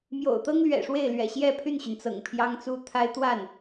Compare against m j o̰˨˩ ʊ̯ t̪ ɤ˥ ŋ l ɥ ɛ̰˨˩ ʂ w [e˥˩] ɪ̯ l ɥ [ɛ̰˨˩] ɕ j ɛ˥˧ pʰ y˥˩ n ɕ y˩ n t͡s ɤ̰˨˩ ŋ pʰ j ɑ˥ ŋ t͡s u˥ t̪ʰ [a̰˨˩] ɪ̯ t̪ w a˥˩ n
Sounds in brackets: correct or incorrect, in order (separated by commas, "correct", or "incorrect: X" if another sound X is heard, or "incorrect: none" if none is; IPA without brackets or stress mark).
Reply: correct, correct, incorrect: a˥